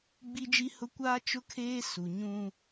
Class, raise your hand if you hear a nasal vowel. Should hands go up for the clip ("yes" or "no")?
yes